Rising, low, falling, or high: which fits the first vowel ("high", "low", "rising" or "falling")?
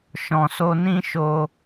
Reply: low